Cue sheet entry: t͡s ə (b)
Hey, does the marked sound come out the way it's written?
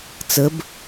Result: yes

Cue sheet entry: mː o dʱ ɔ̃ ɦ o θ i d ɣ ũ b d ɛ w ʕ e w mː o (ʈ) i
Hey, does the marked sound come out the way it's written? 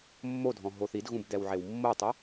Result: no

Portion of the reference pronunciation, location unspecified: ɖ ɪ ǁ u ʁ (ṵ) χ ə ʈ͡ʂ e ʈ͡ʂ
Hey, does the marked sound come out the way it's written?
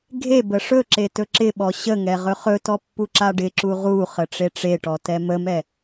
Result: no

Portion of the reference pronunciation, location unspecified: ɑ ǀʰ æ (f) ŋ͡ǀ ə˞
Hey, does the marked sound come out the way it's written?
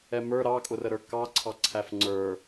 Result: yes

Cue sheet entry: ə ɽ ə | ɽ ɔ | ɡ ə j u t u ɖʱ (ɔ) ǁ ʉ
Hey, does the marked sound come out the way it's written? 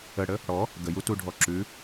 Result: yes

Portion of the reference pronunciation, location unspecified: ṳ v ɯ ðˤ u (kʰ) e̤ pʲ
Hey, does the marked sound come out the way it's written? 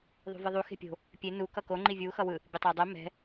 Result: no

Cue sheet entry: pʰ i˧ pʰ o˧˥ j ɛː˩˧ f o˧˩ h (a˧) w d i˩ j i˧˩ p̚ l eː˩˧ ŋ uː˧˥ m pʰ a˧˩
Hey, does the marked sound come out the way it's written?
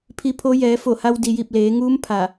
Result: yes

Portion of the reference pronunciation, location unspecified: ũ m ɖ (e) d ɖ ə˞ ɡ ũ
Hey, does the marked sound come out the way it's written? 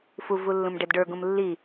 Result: no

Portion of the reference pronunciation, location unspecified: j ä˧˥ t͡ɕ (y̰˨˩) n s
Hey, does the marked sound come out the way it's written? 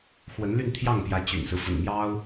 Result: yes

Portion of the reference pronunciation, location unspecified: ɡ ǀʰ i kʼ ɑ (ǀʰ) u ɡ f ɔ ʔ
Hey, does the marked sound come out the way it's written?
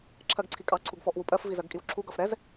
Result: yes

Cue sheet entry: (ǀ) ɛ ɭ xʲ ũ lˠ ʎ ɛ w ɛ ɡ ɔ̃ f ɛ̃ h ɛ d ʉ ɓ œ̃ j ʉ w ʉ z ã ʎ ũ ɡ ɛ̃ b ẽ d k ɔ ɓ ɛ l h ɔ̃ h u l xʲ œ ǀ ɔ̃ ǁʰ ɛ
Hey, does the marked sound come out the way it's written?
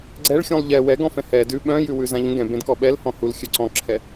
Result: no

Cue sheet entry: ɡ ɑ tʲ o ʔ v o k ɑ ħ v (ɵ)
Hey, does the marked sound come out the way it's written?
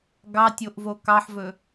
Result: yes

